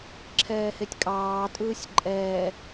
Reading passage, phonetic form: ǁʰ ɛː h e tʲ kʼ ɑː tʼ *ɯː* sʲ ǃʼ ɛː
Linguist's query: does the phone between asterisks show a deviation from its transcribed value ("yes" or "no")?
no